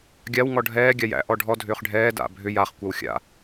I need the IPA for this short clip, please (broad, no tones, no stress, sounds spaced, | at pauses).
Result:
ɡʲ a w ŋ ɔ ɖʱ ɛː ɡʲ a j æ̰ ʔ ɔ ɖʱ ɔ dʱ ʏː χ ɖʱ ɛː d a̰ bʱ ʏ j a χ kʷ a w xʲ a̰